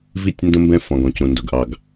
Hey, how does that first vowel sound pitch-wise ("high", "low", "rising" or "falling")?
falling